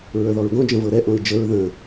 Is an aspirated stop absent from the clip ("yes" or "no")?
yes